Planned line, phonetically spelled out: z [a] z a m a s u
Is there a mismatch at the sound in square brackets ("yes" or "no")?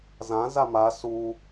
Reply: yes